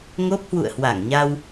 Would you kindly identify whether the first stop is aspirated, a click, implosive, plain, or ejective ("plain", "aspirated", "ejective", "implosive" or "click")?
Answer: plain